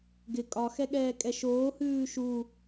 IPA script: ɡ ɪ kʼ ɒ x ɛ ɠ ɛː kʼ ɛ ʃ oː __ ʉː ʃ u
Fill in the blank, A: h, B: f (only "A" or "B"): A